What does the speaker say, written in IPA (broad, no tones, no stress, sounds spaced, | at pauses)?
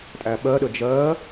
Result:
tʼ æ ɓ ɜ ɗ ə d͡ʒ ɜ